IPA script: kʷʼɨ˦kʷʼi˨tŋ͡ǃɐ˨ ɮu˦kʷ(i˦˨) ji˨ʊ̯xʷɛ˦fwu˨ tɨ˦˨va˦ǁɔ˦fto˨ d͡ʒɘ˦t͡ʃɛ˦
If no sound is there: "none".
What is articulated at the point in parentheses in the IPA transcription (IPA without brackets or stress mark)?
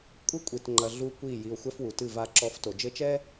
i˦˨